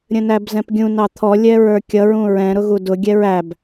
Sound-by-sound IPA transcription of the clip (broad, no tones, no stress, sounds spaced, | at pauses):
ɾʲ ə̃ n æ b z ɛ̃ p ɡʲ ũ n ɑ t̪ʰ ɔ lʲ ɛ ɹ ə˞ kʲ ʌ ɹ ũ ɹ ɛ̃ ɾ ʊ ɣ u d ʊ ɡʲ ɛ ɹ æ b